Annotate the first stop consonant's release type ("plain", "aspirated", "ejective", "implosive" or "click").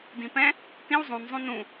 plain